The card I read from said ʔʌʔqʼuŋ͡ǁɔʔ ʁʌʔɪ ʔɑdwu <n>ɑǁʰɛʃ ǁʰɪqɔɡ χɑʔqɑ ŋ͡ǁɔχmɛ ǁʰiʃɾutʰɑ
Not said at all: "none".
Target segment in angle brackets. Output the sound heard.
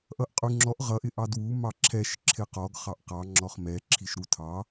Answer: m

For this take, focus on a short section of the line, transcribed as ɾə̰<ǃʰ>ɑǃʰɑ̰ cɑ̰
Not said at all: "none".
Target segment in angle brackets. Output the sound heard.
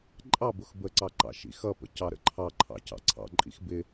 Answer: ǃʰ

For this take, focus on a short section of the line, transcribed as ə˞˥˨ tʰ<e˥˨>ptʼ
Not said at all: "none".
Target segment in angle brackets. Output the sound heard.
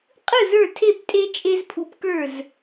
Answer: e˥˨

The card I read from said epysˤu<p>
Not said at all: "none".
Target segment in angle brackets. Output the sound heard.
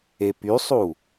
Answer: none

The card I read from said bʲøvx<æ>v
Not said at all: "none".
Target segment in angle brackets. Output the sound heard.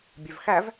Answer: æ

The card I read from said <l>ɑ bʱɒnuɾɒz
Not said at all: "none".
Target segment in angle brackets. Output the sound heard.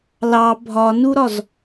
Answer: l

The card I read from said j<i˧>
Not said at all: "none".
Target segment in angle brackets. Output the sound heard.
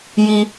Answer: i˧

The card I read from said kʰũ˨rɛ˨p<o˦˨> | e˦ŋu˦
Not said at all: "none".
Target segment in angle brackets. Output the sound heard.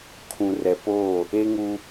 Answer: oː˦˨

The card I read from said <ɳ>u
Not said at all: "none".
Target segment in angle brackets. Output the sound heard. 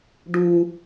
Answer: ɖ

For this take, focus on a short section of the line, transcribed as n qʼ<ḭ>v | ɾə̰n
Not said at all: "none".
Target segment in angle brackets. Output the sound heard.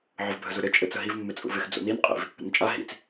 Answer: ḭ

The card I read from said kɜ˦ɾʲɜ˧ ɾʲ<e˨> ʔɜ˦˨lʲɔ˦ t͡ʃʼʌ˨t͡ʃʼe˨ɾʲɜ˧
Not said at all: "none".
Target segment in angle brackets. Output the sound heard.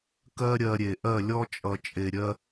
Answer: e˨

